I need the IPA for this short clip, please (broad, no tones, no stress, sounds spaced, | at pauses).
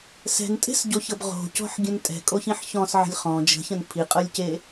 s ɛ̤ n tʼ e̤ s ɟ o ç ɤ b ʁ o̤ c ɔ̤ ħ ɡʲ ə̃ n tʼ ɛ̤ kʼ o ç ĩ ħ ç ɔ̃ s ʕ ə̤ lʲ χ ɔ̃ d͡ʒ ə̤ ç ə̃ n pʰ i qʼ ɤ lʲ c e